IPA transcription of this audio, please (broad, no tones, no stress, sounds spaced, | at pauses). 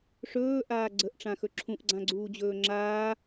ʂ ɵː ʔ aː ɡ͡ǀ ə ʔ ʈ͡ʂ ã x ɵ ǁʰ ũ ʔ ɡ͡ǀ ã ɡ͡ǀ uː d͡ʑ ɵː ŋ͡ǁ aː